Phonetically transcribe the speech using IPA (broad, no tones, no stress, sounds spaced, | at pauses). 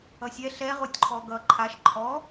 ʌ sʲ ɛ ɬ ɛ ʁ o tʲ ǃʰ ɔ ɡ ʌ ǃʰ a ʃ ǃʰ ɔ